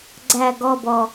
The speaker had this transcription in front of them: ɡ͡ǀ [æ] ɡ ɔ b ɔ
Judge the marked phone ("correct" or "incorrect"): correct